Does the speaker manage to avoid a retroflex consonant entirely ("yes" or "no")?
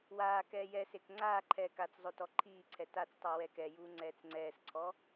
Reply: yes